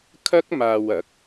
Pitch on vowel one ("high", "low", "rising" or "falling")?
high